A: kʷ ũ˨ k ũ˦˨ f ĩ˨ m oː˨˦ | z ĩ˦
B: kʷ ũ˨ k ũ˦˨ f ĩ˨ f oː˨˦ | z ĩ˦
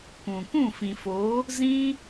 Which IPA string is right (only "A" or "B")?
B